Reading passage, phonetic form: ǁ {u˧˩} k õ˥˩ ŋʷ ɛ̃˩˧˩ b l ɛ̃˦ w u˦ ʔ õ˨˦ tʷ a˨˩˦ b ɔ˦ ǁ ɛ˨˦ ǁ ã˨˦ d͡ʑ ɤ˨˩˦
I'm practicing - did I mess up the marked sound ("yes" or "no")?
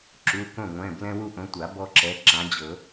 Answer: yes